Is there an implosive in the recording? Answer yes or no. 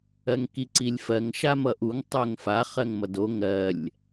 no